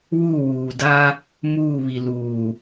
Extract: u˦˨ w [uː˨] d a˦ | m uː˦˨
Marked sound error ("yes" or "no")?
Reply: no